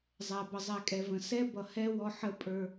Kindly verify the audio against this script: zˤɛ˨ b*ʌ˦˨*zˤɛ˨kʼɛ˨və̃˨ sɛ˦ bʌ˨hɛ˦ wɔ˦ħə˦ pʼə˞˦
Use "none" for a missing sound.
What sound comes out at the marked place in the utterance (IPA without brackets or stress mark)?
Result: ʌ˨